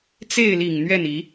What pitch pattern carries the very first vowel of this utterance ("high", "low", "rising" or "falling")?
falling